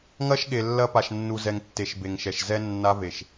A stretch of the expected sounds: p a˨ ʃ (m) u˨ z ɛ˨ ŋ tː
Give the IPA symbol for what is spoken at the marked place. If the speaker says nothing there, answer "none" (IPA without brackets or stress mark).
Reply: nː